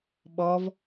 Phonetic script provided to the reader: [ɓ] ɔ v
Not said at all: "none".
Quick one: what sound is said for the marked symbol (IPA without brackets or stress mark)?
ɓ